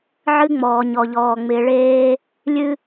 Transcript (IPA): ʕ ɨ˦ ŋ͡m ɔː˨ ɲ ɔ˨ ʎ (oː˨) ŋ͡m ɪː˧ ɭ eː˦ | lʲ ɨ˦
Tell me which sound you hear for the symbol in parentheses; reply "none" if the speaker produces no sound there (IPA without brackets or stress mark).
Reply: ɔː˨